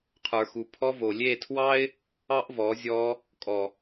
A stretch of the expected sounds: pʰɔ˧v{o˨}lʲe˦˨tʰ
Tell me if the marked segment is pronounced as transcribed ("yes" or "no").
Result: yes